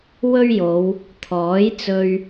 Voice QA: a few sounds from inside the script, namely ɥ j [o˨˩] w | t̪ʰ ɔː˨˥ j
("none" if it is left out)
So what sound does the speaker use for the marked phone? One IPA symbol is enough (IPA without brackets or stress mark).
o˨˧